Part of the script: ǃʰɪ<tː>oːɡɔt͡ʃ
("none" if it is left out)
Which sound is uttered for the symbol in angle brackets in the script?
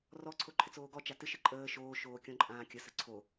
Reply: t͡s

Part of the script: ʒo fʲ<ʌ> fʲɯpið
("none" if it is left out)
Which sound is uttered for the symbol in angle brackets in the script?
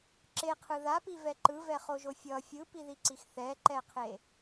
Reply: ʌ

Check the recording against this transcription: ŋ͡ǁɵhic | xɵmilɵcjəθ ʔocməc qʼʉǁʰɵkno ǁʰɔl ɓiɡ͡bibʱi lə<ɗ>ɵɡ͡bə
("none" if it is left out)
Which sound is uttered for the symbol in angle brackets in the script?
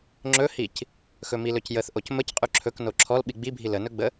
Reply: n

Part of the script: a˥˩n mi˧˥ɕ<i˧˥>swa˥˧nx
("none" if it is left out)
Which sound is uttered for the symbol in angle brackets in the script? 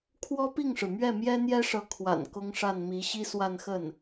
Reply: i˥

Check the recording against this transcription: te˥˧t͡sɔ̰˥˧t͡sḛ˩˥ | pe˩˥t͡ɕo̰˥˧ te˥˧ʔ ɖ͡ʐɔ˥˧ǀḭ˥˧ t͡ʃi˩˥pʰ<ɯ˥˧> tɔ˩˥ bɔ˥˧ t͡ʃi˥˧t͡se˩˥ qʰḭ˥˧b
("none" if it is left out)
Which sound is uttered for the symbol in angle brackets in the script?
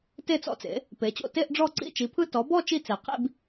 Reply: ɯ˥˧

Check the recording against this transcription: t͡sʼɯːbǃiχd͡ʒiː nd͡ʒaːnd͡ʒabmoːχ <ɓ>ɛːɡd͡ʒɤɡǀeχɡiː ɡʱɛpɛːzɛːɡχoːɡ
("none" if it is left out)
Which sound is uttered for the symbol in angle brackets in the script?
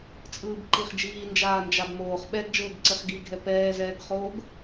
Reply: ɓ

